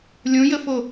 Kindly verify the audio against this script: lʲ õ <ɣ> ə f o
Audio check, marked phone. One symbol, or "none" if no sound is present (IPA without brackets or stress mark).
j